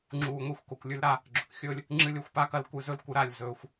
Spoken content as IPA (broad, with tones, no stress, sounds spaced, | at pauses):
ŋ͡ǁ uː˧ ŋʷ e˦ xʷ k o˨ kʷ lʲ ʉ˧ l ɾ a˧ | ɡ͡ǁ ɵ˨ k xʲ ɵː˦ lʲ | ŋ͡ǁ ɨ˧ lʲ ɵ˨ xʷ p a˦ k ɐ˧ l kʷ ɨ˧ z ɵ˦ l kʷ ɨ˧ ɾ a˦˨ lʲ z ɵː˧ xʷ